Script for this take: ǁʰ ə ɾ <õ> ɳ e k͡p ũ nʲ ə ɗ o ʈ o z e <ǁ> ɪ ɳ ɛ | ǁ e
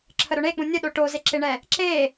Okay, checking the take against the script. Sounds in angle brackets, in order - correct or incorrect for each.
incorrect: o, correct

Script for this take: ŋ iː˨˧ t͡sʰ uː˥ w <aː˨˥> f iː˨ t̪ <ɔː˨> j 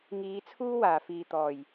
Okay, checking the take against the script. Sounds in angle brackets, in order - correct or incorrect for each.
incorrect: aː˨˩, incorrect: ɔː˨˩

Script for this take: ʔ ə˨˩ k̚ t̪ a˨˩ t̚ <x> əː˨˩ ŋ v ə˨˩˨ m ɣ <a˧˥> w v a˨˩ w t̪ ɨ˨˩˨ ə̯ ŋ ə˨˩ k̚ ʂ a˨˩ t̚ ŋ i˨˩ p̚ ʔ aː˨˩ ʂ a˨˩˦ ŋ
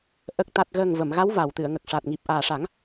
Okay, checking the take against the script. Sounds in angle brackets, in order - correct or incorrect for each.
incorrect: ɣ, correct

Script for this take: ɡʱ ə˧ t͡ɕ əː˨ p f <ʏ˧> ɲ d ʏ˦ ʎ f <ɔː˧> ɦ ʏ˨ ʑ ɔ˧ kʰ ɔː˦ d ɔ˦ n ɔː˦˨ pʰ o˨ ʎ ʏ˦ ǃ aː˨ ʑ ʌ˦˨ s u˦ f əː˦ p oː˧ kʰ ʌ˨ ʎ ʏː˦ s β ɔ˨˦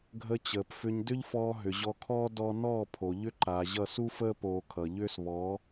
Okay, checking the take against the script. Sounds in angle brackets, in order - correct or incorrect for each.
correct, correct

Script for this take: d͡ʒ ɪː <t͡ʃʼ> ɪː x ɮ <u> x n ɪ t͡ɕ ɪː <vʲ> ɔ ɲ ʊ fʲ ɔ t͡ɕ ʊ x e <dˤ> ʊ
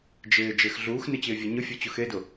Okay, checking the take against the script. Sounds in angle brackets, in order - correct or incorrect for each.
incorrect: d͡ʒ, incorrect: uː, correct, incorrect: d

